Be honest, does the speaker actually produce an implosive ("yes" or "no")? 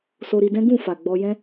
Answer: no